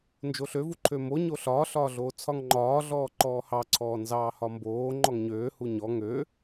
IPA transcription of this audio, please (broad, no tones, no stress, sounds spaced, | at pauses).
n d͡ʒ o ɬ ø v u ǃʰ ø m o ɲ o ɬ ɒː ɬ ɒː ɮ oː t͡sʰ ɒ ŋ ŋ͡ǃ ɒː ɮ ɔː ǃ ɔː h ɑ ǀʰ ɔː n z ɑː h ɒ m b oː ŋ͡ǃ ɔ ŋ ɲ øː h u ɲ ɔ ŋ ø